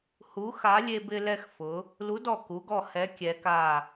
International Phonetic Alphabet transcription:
h u˨˥ x a˨˥ lʲ e˧ b ɪ˧ l ɛ˧ x f ʊ˩˧ | l u˨˥ d ɔ˧˩ k u˩˧ ɡ ɔ˧˩ h ɛ˨˥ kʲ ɛ˩˧ k a˧˩

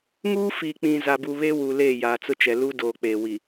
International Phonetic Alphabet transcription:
ŋ uː˦ f iː˨ k͡p ĩ˨ z a˨ b u˨ β e˦ w u˨ l eː˦˨ j aː˨ t͡s ʊ˦ t͡ʃ ɛ˨ l u˦ d oː˨ k͡p eː˨ w i˨

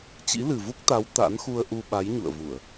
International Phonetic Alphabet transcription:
t͡ɕ ḭ˧˥ l ɨ˨˩ v u˦˥ k̚ t̪ a˨˦ w t̪ a̰˧˥ n x u˧ ə̯ ʔ u˧ ɓ a˨˦ j ɲ ṵ˧˨ ə̯ v u˧˩˨ ə̯

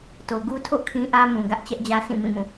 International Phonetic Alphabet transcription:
t o˨ ɡ u˦ tʰ o̰˦˨ kʰ ĩ˦ ʔ ä˦ m ũ˨ ɡ ä˦ ʔ t͡ɕ ɛ˦ ʔ d͡ʑ ä˦ s ĩ˦˨ m ĩ˦˨ m ũ˦˨

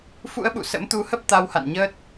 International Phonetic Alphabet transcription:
f ṵ˧˥ ə̯ ɓ ṵ˧˨ s ə̰˧˥ m t̪ u˧ h ə˦˥ p̚ t̪ a˧ w h a̰˧˨ n ɲ əː˦˥ t̚

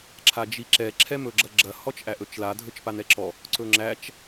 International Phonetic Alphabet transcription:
ǁʰ a d͡ʒ i ǁ ɛ ǁʰ ɛ m ɵ ɡ͡ǁ ɐ ɡ͡ǁ ɐ h ɔ t͡ʃ ʔ æ ʔ ɵ t͡ʃ l a dʱ ɵ t͡ʃ p a n ɛ ǁ ɔ | ǀ ɵ ŋ͡ǁ æ t͡ʃ

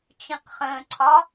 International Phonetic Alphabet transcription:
t͡ʃ ĩ q χ ə̃ː ǀʰ ɒ

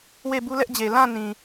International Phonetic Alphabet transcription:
w e˦˨ b u˦ l ɛ˦ ʔ d͡ʑ e˨ l ã˦˨ n ĩ˨

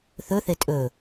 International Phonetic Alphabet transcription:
θ ɵ θ e tʼ ɵ

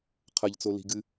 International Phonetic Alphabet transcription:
qʰ ɐ ʎ t͡s o l i̤ ɡ ɨ

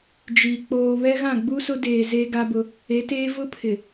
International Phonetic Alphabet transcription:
d͡ʒ i˨ k͡p oː˨ β ɛ˦ ɣ ã˦˨ ɡ͡b u˦ s ʊ˦ d eː˨ z e˦ ɡ a˦ b ʊ˦ | e˨˦ t eː˦ v ʊ˦ pʰ ɪ˨

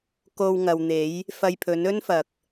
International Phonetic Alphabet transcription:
k o˧ w ŋ ɐ˨ w n̪ e˨˥ j | f ɐ˧ j pʰ ɵ˨˥ n ɵ˥ n f ɐ˨ k̚

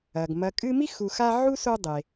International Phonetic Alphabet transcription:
ɐ˩ ɡ m ɐ˨ kʼ ɨ˦ m i˥ x u˨ x a˦ ʕ u˥ s o˦ dˤ e˩

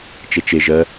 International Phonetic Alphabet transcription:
t͡ʃ e t͡ʃ e ʒ ɜ

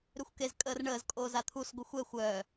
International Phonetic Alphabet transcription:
ɾ ø xʷ k e z kʼ əː r ɳ əː z kʼ oː z a t̪ʰ u s ɡʷ ə xʷ ɛ xʷ œː

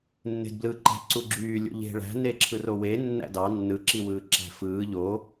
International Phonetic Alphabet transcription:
nː e̤ d b l ɯ ǃ æ̤ ǀ u ɡ͡ǁ yː lʲ o̰ ʎ e̤ ɭ æ̤ n e ǁʰ ɯ r o w e nː æ̰ d ɑ nː ɯ ǁ i w ɯː ǁ æ̤ f ɯː ʎ o

